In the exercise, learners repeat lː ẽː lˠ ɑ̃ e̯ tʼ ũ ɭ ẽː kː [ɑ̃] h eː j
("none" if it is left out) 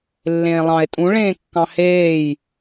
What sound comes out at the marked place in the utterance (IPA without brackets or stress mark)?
ɑ̃